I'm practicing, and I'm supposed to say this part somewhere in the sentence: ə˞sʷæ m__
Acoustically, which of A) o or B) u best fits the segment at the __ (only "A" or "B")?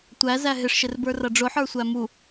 B